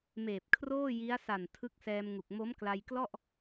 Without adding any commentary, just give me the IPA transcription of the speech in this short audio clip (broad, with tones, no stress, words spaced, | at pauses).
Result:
meː˨˩p̚kʰroː˥˩ji˦˥a̯ sa˨˩n tʰɯ˦˥k̚sɛː˧mŋu˨˩k̚ mo˦˥mkla˧jklɔ˥˩ʔ